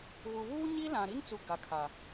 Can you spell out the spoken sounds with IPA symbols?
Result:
ɣu˨ βuː˦ɲi˦lã˨ ɾi˦nt͡su˨ ɡa˨kʰa˨

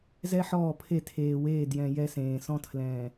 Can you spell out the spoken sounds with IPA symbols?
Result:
zɛ˦ħɔː˦˨pʰe˦˨ tʰeː˨weː˦˨ djɛ̃˨ jɛ˦sẽː˨ sɔ̃˦tʰlɛ̃ː˨

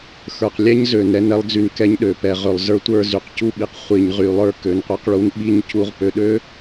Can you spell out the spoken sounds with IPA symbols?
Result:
xə˞˨qlʲɛ˦ɲzø˨n ɾɛ˦nɛ˨˦lˠd͡zy˨n kɛ˦ɲɗø˨ pɛ˨ʁø˨lˠzə˞˦ tʷə˞˦˨zy˨q cu˦ɓi˨q χʷi˨ɲʁy˨lˠə˞˦ kø˨˦nqʷə˞˦qɭu˦n ɓi˦ɲ cu˦ʁ pø˨ɗø˦

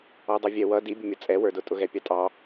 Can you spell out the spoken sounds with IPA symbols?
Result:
ɔdˤuvʲɛ wʌ dibʲʊmʲʌ t͡sʼɛwə˞dʊ tʼʊɣɛpʲɑtʼɑ

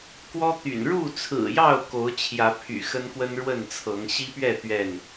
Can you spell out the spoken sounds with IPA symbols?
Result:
kwɔ˦t̪y̰˨˩n ɻu˥˨t͡sʰɹ̩˨˩jɑ˥˨ʊ̯ ko˨˦ʊ̯t͡ɕʰjä˨˦pʰy̰˨˩ xə˦nkwə˦nɻwə˥˨nt͡sʰɤ˨˦ŋ ɕi˦pɥɛ˥˨ t̪ɥɛ˥˨n

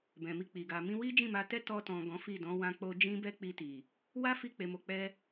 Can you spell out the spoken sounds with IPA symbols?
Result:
bɛ̃˨mi˧ k͡pi˨ɡa˨ mĩ˧ wi˦d͡ʒĩ˦˨ma˧tɛ˦ tɔ˧tɔ̃˨ ɡɔ̃˨˦fi˦˨dɔ̃˨˦ wã˧k͡po˧ d͡ʒĩ˦bɛ˦ k͡pi˧ti˨ | wa˦fi˧ k͡pe˨mo˨k͡pɛ˧

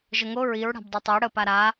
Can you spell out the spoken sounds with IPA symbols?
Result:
ʒəŋo ɹiɹ ɽa̤bdˤotˤo ɽə paɾa

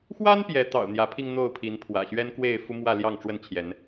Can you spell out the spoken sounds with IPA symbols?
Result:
xwa˦n pjɛ˨˦t̪ɑ̰˨˩ʊ̯n̪jä˨˦pʰi˧ŋ n̪o˥˨ʊ̯pʰi˨˦npʰwä̰˨˩ ɕɥɛ˦nkwe˥˨ɪ̯ fu˦mwä˥˨ ljɑ˥˨ŋʈ͡ʂwə˥˨nt͡ɕʰjɛ˨˦n

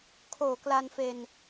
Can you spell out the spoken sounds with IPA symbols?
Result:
kʰoː˨˩kla˧nfe˧n

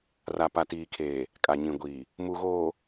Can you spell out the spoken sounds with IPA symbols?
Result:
ra˨ pa˨tiː˨kʰeː˨ | kʼa˨ɲĩ˨ɡʷiː˨ | mu˨ɣoː˨

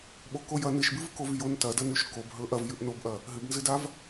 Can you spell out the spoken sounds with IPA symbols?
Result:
ɓokojɐ nɨʃbɨvkov jon tɐdɐnʉʃ kob ɦɵʔɐvjʉʔ nobʔɐ | ɦɨbnzɨdav

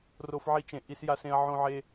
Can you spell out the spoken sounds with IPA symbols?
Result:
ro˧fʕi˧t͡ʃẽ˨ ʔi˧sja˧sẽ˧ɐ̯ ʕõ˧ʕe˧

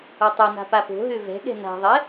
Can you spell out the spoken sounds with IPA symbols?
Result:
otˤɛna̤ papo̤ɦø vɛ̤ɠɛ̤ na̤ðˤɛ

